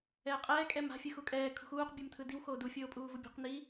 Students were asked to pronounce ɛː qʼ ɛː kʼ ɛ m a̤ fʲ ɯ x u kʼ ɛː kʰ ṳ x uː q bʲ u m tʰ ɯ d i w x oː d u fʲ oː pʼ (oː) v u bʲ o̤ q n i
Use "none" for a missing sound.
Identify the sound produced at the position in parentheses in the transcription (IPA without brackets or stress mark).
uː